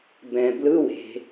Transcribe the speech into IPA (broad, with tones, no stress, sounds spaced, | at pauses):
b ɛ̃˩ b l ɯ˧˥˧ w e̤˩